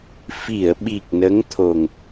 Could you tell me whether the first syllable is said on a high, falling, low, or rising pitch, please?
low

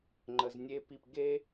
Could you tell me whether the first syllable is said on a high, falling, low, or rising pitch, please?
low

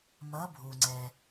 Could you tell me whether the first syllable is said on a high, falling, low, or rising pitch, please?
rising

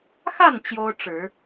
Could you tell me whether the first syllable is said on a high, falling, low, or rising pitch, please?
falling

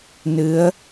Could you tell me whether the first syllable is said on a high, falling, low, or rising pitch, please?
rising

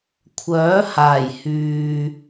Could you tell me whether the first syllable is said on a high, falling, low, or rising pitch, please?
rising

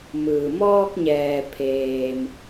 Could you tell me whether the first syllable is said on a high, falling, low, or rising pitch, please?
low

